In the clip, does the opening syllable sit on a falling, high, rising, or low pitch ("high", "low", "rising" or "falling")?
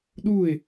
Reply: falling